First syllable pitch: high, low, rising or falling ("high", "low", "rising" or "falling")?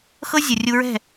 high